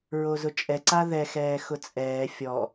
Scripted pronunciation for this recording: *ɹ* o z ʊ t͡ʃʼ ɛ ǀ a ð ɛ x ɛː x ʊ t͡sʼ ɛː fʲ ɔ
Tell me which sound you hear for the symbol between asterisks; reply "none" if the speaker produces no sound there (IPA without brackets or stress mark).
ɹ